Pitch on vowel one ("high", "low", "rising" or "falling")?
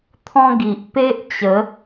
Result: high